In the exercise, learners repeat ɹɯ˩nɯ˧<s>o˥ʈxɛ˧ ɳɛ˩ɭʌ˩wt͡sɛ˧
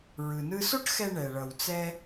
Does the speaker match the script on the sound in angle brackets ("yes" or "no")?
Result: yes